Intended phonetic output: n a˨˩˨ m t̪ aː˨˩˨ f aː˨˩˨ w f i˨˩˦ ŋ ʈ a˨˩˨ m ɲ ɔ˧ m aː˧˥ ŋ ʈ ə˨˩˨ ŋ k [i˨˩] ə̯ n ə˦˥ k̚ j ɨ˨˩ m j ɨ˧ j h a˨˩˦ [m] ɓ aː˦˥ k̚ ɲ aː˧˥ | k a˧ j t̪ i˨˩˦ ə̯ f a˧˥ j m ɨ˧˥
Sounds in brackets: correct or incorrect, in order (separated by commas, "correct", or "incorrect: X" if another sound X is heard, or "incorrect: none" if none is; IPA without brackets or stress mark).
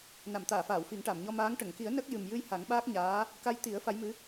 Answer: incorrect: i˨˩˦, incorrect: ŋ